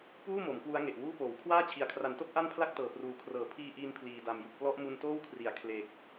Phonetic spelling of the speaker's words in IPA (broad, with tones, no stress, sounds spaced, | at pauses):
p uː˥˩ m o˩˦ m k w u˦˥ a̯ ŋ e˨˩ ʔ w uː˥˩ p oː˩˦ w kʰ w aː˥˩ t͡ɕʰ i˨˩ a̯ kʰ r a˩˦ n t o˦˥ k̚ ʔ a˥˩ n pʰ l a˥˩ k̚ t ɤː˨˩ p r uː˨˩ kʰ r ɤː˩˦ pʰ iː˧ ʔ iː˧ n pʰ l iː˨˩ d a˨˩ m j u˨˩ k̚ p l ɔ˦˥ ʔ m u˧ n t oː˥˩ w kʰ r i˩˦ a̯ kʰ l e˨˩ k̚